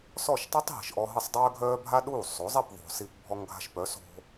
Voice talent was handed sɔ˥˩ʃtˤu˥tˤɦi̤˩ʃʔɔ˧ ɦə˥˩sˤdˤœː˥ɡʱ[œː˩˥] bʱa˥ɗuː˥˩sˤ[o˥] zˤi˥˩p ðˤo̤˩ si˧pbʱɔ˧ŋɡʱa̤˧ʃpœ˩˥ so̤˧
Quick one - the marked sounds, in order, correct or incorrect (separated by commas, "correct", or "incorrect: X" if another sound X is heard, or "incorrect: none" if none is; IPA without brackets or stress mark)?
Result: incorrect: œː˥, incorrect: o˩˥